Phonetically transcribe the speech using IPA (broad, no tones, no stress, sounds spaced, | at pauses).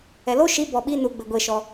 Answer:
ɛ l o ʃ i b ɔ ɓ i n u ɡ͡b ɘ ɡʷ e ʃ ɔ